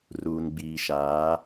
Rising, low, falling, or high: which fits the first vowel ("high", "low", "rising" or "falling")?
low